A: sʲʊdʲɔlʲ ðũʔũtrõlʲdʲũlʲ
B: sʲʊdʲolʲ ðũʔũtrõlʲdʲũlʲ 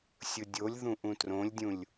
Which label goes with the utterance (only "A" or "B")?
B